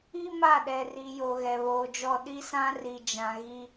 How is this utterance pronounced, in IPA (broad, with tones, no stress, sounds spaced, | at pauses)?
i˦ m a˦˨ ɗ ɛ˨ r i˨ j o˨ ɣ ɛ˨ β oː˨ d͡ʒ ɔ˦ ɗ i˦ s ã˦ r i˨ d͡ʒ ã˨ ɣ i˦